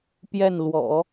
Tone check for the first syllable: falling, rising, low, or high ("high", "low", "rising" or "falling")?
falling